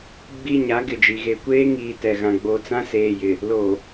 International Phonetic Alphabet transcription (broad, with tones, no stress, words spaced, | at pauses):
ɡ͡bi˦ɲa˨˦ ɡɪ˨d͡ʒi˨ ɣe˨kʷeː˦ŋiː˨ tɛ˨ɣã˨ ɡ͡bo˨ t͡sã˦seː˨jɪ˨ | lo˨